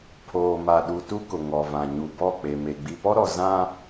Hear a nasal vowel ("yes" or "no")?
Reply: yes